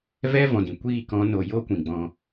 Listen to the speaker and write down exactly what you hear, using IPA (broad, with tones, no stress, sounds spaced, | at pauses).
v ɛ˦ v ɔ̃˨ d ĩ˨ kʷ iː˦˨ k ɔ̃˨˦ n o˨ j o˦ kʷ ĩ˨ ɡ͡b ɔ̃˧